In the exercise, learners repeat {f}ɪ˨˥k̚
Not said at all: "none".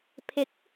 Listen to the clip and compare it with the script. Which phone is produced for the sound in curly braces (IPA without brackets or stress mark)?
pʰ